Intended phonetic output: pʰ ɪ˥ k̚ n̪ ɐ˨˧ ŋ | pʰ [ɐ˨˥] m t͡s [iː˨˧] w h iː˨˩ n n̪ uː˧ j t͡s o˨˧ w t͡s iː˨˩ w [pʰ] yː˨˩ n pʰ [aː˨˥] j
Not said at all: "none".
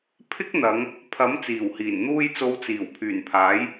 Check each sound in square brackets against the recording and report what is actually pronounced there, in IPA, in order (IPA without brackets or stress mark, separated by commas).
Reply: ɐ˨˥, iː˨˩, pʰ, aː˨˥